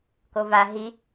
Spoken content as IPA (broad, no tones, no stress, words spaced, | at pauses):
kova ɦi